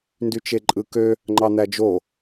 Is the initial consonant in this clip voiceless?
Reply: no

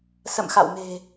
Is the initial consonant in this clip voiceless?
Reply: yes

